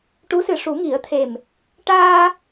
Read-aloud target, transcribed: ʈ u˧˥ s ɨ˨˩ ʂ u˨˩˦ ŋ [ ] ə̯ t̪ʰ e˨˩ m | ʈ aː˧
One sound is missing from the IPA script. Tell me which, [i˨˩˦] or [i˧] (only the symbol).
i˨˩˦